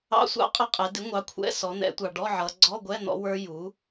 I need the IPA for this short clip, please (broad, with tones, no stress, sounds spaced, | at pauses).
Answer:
ɑ̰˧˥˧ sʷ ɑ̰˦˥ qʼ ʌ˦˨ qʼ ɛ˩˧ d ɪ˩˥ ŋʷ ɑ˩˥ kʷʰ ɛ̰˧˥˧ s ɔ˩˧ n̪ ɛ̰˩˧ tʷ ɑ˩ ɖ ɔ˧˥˧ ʕ ʌ˩˧ ɡ͡ǀ ɔ˧˥˧ ɡʷ ɛ˧˥˧ n̪ ɔ̰˦˥ w ə˞˦˥ j u˩˥